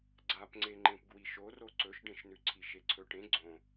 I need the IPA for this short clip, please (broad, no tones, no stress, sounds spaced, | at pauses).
ɡ͡ǀ a p ŋ͡ǀ e ŋ͡ǃ ẽ p ɡ w i ʃ o r o ǀ ɵ ʃ ɖ ẽ ʃ n ʉ ǀʰ i ʃ e ǀʰ ɵ ʈ ẽ ɡ͡ǀ õ